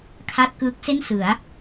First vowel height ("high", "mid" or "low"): low